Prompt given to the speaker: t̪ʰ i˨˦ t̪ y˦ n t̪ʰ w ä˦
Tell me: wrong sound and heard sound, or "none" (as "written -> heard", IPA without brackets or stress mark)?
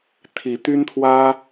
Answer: none